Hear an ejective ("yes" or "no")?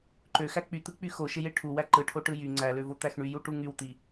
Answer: no